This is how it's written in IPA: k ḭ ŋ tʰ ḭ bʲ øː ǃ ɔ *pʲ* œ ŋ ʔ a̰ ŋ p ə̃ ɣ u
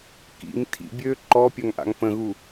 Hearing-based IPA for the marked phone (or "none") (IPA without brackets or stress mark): pʲ